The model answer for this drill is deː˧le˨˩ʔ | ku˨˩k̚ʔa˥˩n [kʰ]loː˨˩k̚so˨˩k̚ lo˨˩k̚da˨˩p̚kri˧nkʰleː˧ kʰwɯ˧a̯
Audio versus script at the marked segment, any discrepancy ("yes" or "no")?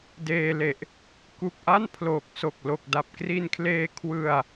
yes